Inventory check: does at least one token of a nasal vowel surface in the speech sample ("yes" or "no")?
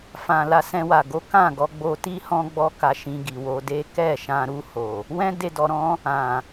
yes